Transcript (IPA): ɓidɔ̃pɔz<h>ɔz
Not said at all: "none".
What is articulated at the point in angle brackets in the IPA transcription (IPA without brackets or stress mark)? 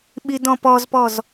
p